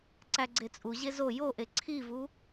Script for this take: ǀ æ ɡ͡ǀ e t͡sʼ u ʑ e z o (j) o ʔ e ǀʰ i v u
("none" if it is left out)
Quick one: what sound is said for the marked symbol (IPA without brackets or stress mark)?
j